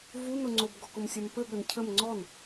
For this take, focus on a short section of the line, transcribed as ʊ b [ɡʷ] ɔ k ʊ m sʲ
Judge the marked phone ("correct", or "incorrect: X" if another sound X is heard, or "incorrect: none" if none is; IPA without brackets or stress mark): incorrect: ɡ